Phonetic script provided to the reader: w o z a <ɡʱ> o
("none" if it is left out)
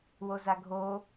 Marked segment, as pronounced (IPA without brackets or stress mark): ɡʱ